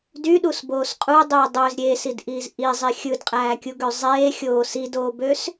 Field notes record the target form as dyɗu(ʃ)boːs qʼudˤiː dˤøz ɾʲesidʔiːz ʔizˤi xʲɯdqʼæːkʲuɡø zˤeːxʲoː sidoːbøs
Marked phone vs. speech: incorrect: s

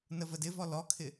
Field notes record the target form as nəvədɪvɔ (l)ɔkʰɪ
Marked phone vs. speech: correct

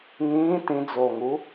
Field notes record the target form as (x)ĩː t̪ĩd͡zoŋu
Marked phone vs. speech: incorrect: ŋ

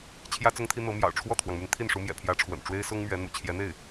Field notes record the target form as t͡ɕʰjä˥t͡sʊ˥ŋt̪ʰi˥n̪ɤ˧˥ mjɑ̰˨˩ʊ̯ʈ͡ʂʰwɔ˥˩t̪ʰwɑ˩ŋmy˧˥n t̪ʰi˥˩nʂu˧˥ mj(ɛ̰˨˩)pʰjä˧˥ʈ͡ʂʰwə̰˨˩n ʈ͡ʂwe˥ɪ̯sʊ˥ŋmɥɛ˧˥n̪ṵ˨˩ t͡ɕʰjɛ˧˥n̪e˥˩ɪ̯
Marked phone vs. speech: correct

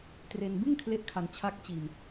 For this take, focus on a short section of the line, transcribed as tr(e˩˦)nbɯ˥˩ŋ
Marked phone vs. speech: incorrect: e˧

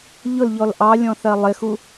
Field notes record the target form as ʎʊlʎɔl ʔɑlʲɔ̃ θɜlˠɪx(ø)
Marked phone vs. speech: incorrect: u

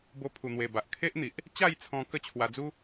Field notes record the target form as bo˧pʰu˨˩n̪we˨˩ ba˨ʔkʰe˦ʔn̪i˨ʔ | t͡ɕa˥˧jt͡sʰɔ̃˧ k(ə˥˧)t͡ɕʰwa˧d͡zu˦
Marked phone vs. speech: correct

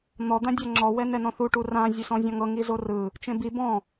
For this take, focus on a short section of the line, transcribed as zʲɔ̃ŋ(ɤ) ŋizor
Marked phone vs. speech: correct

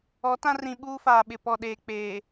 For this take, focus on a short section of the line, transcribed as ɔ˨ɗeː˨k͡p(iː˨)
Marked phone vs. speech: incorrect: eː˨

